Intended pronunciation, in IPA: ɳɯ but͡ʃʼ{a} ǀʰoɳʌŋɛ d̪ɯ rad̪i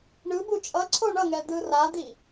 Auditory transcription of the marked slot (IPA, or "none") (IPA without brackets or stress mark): ʌ